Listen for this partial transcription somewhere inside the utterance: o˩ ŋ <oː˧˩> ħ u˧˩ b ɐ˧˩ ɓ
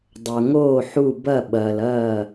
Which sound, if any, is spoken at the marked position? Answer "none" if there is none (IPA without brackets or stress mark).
oː˧˩